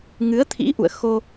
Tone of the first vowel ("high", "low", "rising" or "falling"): rising